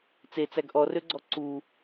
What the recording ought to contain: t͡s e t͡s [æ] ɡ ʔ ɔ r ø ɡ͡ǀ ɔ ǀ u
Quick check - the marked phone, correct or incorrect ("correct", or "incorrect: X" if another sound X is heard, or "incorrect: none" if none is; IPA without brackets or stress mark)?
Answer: correct